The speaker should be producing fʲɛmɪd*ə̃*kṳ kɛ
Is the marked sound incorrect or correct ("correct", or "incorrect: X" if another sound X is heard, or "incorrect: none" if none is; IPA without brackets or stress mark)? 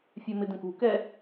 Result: correct